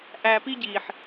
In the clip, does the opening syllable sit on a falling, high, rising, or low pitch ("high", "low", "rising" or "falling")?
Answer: low